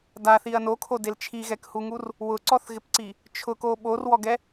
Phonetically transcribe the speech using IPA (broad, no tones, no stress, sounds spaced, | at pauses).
d a θ i ɐ̯ n o kʰ o d e l t͡ʃʰ i ɣ ɛ k h u ŋ u r | w ʊ ǀ ɔ θ ɣ ɪ p ǀ i | t͡ʃʰ ʊ k o ɓ o r w ɔ ɡ ɛ